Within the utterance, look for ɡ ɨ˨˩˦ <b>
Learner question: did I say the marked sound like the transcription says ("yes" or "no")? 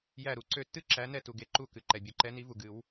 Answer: no